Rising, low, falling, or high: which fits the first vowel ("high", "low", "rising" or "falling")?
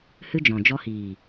high